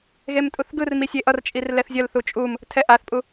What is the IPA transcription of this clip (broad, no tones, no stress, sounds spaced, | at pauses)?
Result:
ɣ e m tʼ u θ ɡ ɯ r m i sʲ e ʔ ʌ r t͡ʃʼ i r l ɛ θ zʲ ʌ l θ u t͡ʃʼ u m | tʰ ɛ ʔ a θ pʼ u